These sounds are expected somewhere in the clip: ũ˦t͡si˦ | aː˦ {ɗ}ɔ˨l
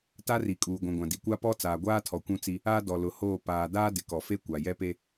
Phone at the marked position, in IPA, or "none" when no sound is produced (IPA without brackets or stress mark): d